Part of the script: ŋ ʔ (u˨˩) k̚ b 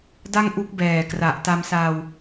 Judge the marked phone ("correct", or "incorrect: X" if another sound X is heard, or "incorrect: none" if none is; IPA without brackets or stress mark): incorrect: u˦˥